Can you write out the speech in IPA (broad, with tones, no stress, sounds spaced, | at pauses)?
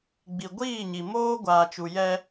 ɡ͡b i˨ ɡʷ iː˦˨ ɲ i˨ m oː˦ ɡʷ aː˨ t͡ʃ u˨ j ɛ˦